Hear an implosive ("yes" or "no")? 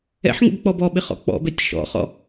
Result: yes